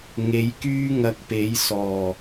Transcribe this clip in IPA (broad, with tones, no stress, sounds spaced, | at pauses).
ŋ e˨˥ j k yː˥ ŋ ɐ˧ k̚ p e˨˥ j s ɔː˨˩